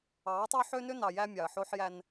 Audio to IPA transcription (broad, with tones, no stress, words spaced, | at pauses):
ɑ˨˦tˤo˦ ħø˦nø˦nɑ˨ jæ˦mʲɑ˨ə̯ħo˦ħjæ˦n